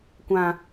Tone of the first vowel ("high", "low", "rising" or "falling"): high